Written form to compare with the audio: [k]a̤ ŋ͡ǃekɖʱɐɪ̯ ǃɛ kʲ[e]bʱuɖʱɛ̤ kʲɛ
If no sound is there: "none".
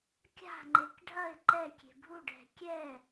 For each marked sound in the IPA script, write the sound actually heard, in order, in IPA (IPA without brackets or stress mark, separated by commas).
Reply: kʲ, e̤